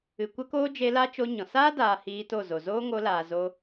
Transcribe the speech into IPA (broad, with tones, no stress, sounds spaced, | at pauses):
ɨ˨ kʷ ə˦ k oː˦ d͡ʒ e˧ l a˦ t͡ʃ o˧ ɲ ɔ̃˨ s aː˦ d aː˨ h iː˧ t o˦˨ z o˨ z oː˦ ŋ o˧ l aː˨ z o˧